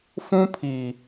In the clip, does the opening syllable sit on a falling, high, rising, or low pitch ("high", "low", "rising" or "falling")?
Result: high